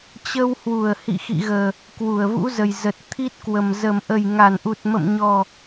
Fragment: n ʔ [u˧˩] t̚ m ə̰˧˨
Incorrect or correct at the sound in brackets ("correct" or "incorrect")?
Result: incorrect